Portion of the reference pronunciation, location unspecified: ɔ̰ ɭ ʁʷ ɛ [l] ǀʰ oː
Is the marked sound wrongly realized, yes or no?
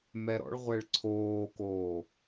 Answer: yes